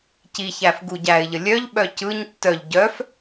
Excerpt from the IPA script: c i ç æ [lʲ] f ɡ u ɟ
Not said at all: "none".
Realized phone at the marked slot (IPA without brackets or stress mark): none